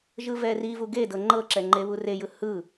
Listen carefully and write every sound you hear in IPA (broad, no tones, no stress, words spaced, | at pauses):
ʒɯvɛrivu ɡedɤ ŋ͡ǃɤǁɛ ŋ͡ǃeβurejɯ hɯ